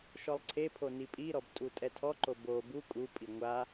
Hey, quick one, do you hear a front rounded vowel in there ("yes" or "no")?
no